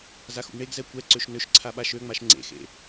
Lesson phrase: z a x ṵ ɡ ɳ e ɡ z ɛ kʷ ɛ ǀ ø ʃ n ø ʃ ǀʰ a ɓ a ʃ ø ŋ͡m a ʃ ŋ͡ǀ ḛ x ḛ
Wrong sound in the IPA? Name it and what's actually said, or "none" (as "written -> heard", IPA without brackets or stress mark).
none